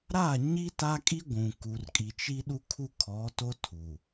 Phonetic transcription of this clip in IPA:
ɾ a˦˨ ɲ i˦ t a˦ kʼ i˦ ɡʷ ũ˨ k u˨ r kʼ i˨ t͡ʃ i˦ ɗ u˦ kʰ u˦ kʰ ɔ˨˦ t o˦ tʰ u˨

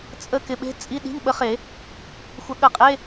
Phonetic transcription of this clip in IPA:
t͡sʼ ə˧˥˧ k ɪ˨ ɓ e̤˧˥˧ t͡sʼ i˧˥˧ ɗ i̤˧˥˧ ŋ ɓ ə˨˦ χ e˨˩˦ | xʷ ɐ˨˦ ɠ ə˨˩˦ qʼ e˧˥˧

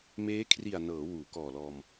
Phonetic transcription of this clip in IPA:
m eː˦˥ kʰ r i˨˩ a̯ n ɤː˩˦ w uː˩˦ k ɔː˨˩ l ɔː˧ m

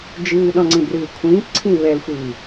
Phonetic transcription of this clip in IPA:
d͡ʒ ɨː ɗ ɔ̃ ŋ͡ǀ ĩ b r ɨː kʷʰ ĩː p ǀʰ ĩ β ɛ l xʷ ɨː

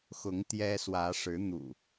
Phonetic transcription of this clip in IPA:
x ʊ˨˦ ŋ t̪ j ɛ˦ s w ä˨˦ ʂ ɻ̩˨˦ n̪ ṵ˨˩

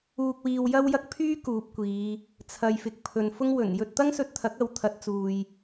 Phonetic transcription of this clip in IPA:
uː˧ k̚ w iː˧ w j ɐ˥ w j ɐ˥ k̚ pʰ yː˥ k uː˨ p̚ kʷ iː˨˧ | t͡sʰ ɐ˨ j f ɪ˨ k̚ pʰ ɵ˨ n f ʊ˥ ŋ w ɵ˨˩ n j ɵ˧ t̚ t̪ ɐ˥ ŋ s ɵ˧ t̚ t̪ʰ ɐ˨˥ k̚ ɐ˨˥ w t̪ʰ ɐ˨˥ t̚ t͡s uː˨ j

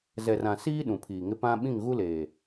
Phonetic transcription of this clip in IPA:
z ɛ˨ r ã˨ s iː˦ ɗ ũ˨ pʰ iː˨ ŋ ɪ˦ p ã˦ ɓ ĩ˦˨ ŋ ɣ u˦ l eː˨

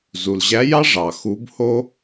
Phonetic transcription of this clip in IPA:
z u˩ l ʑ æ˧˥ j ɑ˥ ʐ ɑ˩ x u˧˥ b h o˥

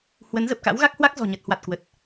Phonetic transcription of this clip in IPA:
h w ə˨˦ n z ə˨˩ p̚ k a̰˧˥ w ɣ a˦˥ k̚ h w a˦˥ k̚ z ɔ̤˨˩ ɲ ə˨˩ t̚ h w a˨˩ t̚ k w ə˨˩ t̚

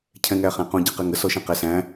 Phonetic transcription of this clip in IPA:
cʰ ɛ̃ ŋ æ χ æ̃ q õ ɟ i q ɛ ŋ ə s ɔ ʃ ɛ̃ q æ s æ̃

